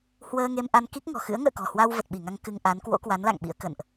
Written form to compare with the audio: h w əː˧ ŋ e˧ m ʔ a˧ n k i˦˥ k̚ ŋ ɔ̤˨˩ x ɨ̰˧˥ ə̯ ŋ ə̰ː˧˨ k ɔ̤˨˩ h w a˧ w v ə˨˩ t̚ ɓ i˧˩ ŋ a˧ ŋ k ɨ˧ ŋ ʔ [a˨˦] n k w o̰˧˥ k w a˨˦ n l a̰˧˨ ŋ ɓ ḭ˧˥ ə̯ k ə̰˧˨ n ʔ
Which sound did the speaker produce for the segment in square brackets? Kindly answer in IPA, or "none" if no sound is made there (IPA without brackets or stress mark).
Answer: a˨˦